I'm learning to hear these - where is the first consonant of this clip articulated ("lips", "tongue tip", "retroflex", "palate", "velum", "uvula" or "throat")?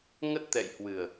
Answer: velum